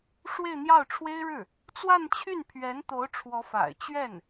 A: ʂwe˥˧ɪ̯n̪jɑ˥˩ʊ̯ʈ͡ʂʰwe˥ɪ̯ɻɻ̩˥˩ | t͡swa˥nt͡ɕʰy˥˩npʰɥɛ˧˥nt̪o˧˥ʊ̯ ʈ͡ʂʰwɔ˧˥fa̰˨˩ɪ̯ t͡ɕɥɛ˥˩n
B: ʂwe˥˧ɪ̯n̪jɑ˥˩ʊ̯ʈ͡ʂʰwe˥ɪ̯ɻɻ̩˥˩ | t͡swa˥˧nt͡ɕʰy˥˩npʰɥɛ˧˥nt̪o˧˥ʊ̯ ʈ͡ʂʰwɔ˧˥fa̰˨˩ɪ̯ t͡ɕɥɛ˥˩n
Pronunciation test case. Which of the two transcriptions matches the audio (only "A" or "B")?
B